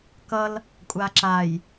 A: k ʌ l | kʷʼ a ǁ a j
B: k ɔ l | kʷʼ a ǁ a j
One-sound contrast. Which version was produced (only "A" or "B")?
A